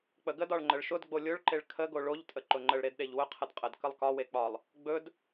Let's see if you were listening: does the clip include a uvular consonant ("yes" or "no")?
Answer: yes